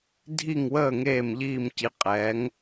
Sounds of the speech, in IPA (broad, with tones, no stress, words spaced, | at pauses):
dʱi˦˨ŋwəː˦˨ ŋeː˦˨mʎiː˦˨mci˨˦ qʼɛː˨˦ŋ